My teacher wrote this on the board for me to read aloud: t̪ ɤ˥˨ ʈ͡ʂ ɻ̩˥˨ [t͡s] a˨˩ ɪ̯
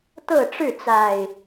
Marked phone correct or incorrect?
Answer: correct